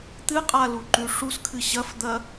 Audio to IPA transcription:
t̪ɨqʼaluǃʉ ʂuskʰɨ ɕɐfd̪ɐ

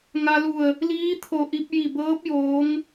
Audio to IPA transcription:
ŋa˧lu˧˩ə̯ | liː˧˥ t̪ʰo˧˩ʔi˧p̚ ji˧˩bɤː˧˥p̚ joː˧˥ŋ

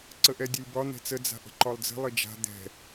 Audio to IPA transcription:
ǀəʔɛdʲɛlʲbɒ n̪ɛ̤t͡sə d͡za̤ʔə̤ǃɒlˠd͡zə̤ lˠɘd͡ʒa̤ d̪ɛ̤

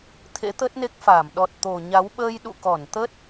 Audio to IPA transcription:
t̪ʰḛ˧˥t̪ə˦˥t̚ne˦˥k̚faː˧˩m ɗɔ˨˩t̚t̪o˨˩ɲa˨˦w ɓəː˧jɗṵ˧˨ kɔ˧˩nt̪ə˦˥t̚

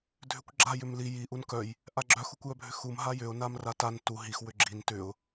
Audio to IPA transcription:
dʱʏkʷɡ͡ǁa jʏmli ji ʔunkœj | ʔaɡ͡ǁœx ukʷjœbʱʏxum ɦajʏʊ̯ namratan tu ɦix wʏɡ͡ǁin tʏʊ̯

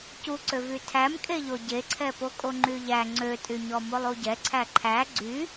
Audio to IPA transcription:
cuǀøvy tʰæmkʼeʎo ɟeǀʰɛpokʼo ŋ͡ǃyʎæ ŋ͡ǀøtʼyɲɔ molˠuɟɛ ǀʰæǃʰæ ɡ͡ǀy

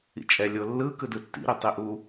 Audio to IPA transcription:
ḭt͡ʃʼɛ lʲolːɯ kɯdɯtːḭ ɾitˤiʔu

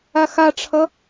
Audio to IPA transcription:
axaʈ͡ʂʰʌ

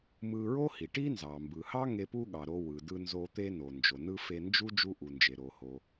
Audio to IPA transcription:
mɯ˧ɹo˥hi˩ʈi˥ nzɑ˩mbɯ˩hɑ˥ ŋe˧pu˥ɠɑ˩ɾo˧ wɯ˩dɯ˧nzo˧ t̪e˧no˩nd͡ʒo˩ nɯ˧ fe˧nd͡ʒu˥ d͡ʒu˧ʔu˩nd͡ʒe˩ ɾo˩ho˩

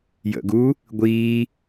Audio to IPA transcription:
jə̰ɡuː | ɡʷiː

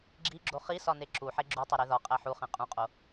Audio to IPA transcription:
ɡ͡ǁiɡ͡ǁo χisɒne ǁuħe ɡ͡ǁutˤeɾe ðɒqʼæ ħuχẽ qʼũqʼo

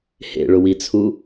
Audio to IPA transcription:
hḛɭʊwit͡sʰu

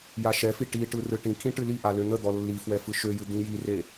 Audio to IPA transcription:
jaʃɛfi ʈiʈɯ rɯʈĩkʰĩ ʈɨliʔa løn̪əd̪ɔ lːifwɛ fɯʃøjɨ d̪ĩjire

